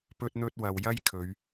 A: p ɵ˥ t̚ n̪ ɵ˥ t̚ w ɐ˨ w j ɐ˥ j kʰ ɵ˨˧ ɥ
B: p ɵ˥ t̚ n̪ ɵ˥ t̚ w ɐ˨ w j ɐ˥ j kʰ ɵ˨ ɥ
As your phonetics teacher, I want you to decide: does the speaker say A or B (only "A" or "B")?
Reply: A